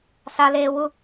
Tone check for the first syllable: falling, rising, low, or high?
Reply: high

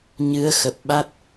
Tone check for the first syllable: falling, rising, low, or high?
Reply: rising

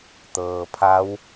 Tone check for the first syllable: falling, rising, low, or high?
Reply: low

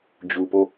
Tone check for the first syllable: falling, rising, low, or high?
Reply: low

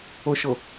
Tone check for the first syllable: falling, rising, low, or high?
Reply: low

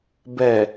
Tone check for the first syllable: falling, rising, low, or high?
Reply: low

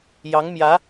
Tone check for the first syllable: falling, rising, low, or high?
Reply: rising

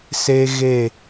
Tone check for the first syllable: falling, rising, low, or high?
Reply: high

